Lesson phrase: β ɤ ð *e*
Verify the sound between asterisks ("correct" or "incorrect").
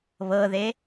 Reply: correct